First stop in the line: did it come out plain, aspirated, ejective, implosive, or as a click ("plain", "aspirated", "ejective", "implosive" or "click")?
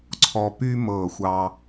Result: click